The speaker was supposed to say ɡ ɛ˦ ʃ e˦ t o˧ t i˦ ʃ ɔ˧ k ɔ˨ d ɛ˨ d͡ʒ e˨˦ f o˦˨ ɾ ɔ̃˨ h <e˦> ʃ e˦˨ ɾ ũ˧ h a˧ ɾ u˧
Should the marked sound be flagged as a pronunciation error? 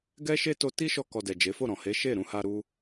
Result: yes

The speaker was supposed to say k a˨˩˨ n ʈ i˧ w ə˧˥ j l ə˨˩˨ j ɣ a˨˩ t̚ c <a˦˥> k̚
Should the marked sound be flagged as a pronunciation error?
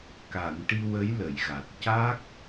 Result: no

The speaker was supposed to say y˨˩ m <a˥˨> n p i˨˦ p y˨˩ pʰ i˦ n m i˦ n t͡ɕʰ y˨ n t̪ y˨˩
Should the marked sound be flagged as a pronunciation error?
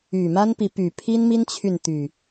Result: yes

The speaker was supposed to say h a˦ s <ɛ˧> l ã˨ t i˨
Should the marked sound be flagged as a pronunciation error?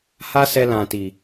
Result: no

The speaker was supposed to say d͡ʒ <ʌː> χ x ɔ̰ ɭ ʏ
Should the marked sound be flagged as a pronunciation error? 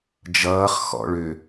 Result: no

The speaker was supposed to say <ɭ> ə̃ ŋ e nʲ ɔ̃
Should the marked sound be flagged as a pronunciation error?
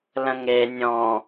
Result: yes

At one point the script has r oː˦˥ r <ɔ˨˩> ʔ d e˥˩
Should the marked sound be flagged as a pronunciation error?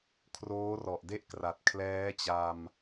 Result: no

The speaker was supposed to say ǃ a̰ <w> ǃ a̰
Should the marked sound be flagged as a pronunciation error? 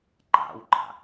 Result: no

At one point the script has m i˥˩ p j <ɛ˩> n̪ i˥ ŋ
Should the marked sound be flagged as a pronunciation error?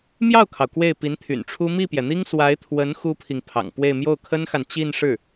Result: no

